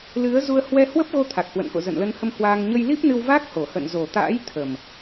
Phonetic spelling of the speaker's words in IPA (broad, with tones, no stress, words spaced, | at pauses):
lɨ˨˦ə̯ zu˧ə̯hwɛ˧hwə˦˥p̚ɣo˧ t̪ʰa˨˩k̚hwə̰˧˨nko̰˧˨ zə̰˧˨nlə˧nhə˧m hwaː˧ŋ ɲə˧jli˦˥p̚nɨ˧w va˦˥k̚ho˨˩hə̰˧˨n zo˨˩t̪a̰ː˧˥j t̪ʰə˨˩m